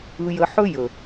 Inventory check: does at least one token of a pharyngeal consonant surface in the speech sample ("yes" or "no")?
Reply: yes